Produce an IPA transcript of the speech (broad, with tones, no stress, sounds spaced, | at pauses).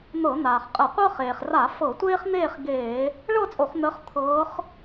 n̪ ɤ˧˩˧ n̪ aː˩ χ qʼ ə˧˩˧ qʷ ɤ˥ χ eː˩ χ r a˧˩˧ f ɤ˧˩˧ tʷ eː˥ χ n̪ eː˥˧ χ ɡ eː˧˩˧ | ɭ ɤ˥˧ t͡sʼ o˧˩˧ χ n̪ əː˨˦ χ t̪ʰ ɤː˨˦ χ